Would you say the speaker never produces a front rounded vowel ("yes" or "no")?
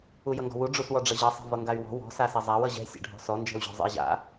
no